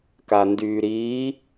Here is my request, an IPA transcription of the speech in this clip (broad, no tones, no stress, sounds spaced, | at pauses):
k a n d yː ɾ iː